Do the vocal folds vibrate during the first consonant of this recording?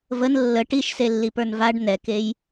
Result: yes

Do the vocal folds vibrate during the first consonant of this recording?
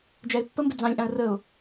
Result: yes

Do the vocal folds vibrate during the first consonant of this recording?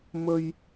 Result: yes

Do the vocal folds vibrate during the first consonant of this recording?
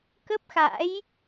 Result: no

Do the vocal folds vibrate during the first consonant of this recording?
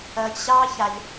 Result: no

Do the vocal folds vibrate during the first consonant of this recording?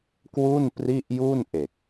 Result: no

